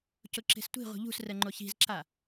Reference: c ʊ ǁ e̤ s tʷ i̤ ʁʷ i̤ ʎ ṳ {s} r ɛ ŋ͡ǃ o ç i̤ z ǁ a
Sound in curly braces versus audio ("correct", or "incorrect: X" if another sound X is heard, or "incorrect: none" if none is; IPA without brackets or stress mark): correct